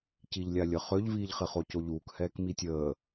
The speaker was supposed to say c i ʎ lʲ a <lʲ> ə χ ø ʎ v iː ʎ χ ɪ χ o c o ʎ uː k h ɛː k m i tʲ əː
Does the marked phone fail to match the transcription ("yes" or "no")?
no